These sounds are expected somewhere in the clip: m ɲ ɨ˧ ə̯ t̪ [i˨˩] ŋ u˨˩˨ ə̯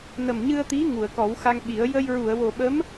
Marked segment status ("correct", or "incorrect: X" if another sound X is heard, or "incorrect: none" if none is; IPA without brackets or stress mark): incorrect: i˧˥